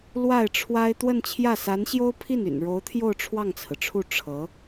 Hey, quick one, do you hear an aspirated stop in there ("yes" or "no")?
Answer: yes